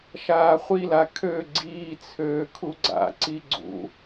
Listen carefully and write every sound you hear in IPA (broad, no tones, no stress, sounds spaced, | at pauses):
ʃ aː χʷ i l a kʰ ø ɡ͡ǀ iː t͡sʰ øː kʰ u ɡ͡ǀ a̰ ǀ i ɡ͡ǀ ṵ